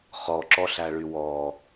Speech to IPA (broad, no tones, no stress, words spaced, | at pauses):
χɔǁɔɬæɭy wɔ